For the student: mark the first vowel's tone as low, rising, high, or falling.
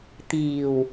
low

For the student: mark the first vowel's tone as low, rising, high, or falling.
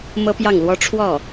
high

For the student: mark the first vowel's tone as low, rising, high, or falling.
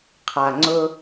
low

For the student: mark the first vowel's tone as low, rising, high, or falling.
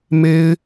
high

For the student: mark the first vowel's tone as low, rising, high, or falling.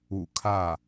low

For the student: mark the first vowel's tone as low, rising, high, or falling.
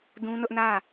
high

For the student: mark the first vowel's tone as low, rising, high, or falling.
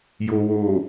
low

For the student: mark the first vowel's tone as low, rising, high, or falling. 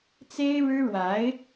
high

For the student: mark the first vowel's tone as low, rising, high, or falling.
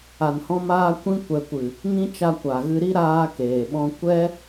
low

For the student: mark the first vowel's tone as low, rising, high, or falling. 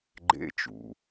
high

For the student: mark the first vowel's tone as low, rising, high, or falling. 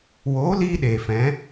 rising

